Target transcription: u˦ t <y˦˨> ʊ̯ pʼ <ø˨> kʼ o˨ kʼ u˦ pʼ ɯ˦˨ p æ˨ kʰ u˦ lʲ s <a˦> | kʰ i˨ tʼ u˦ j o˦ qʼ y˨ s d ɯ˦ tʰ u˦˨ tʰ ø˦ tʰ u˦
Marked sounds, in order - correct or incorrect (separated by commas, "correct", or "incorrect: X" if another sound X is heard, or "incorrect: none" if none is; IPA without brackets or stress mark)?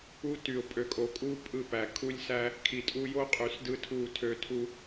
incorrect: y˨, correct, incorrect: æ˦